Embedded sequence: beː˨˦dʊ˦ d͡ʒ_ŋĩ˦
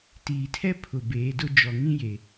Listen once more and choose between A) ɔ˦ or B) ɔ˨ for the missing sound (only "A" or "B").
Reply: B